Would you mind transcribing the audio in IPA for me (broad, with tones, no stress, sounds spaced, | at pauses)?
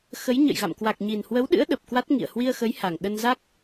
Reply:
x ə˨˦ j ɲ ə̰˧˨ j ɣ a̰˧˨ m k w a˨˩ k̚ ɲ i˨˩ n h w ə˨˦ w ɗ ɨ̰˧˥ ə̯ ɗ ə˨˩ p̚ k w a˦˥ t̚ ŋ ḭ˧˨ ə̯ h w i˧ ə̯ x ə˨˦ j h a˨˩ ŋ ɗ ə˧ n z a˦˥ k̚